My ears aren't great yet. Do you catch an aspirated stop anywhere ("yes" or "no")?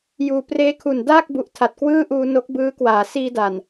yes